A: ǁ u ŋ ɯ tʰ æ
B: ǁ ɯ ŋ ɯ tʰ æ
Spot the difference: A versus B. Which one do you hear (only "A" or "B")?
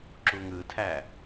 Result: A